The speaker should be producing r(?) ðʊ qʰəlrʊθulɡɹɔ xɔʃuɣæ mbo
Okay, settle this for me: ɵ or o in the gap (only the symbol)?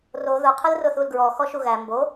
o